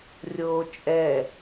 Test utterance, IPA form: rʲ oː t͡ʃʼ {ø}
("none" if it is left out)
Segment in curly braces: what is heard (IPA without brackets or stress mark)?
ɛ